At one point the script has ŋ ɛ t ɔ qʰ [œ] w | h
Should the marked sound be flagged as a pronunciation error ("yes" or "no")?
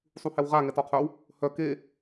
no